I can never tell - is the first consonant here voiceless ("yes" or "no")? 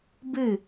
no